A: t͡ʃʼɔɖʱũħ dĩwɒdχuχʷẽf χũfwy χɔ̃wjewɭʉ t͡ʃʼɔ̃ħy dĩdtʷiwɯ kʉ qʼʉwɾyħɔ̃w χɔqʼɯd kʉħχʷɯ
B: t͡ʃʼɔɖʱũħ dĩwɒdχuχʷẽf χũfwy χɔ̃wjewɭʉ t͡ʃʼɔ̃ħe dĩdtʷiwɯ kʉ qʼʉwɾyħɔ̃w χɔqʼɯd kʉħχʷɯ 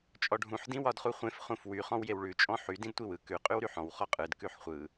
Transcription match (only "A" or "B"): A